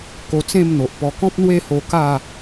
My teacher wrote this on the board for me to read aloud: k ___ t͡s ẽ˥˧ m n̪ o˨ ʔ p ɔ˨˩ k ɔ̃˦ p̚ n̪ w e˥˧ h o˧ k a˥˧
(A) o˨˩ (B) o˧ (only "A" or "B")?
B